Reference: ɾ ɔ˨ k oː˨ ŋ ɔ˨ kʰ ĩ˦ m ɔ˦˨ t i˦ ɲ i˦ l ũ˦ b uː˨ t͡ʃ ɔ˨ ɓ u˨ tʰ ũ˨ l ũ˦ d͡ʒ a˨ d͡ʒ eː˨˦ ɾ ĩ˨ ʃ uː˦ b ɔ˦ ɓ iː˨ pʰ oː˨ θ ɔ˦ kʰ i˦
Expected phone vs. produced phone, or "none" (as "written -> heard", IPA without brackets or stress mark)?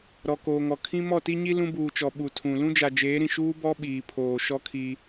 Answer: θ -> ʃ